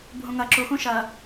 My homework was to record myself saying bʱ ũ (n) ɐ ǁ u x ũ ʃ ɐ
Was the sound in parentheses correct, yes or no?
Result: no